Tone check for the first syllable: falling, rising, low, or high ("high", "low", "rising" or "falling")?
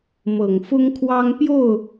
low